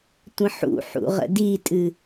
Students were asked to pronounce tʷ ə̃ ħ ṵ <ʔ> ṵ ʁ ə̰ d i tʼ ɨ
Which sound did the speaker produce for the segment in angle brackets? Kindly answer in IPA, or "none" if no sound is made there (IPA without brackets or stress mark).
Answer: ħ